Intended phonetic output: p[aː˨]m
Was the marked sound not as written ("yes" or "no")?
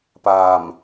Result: no